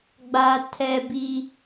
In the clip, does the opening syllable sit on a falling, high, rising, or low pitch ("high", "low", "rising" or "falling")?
high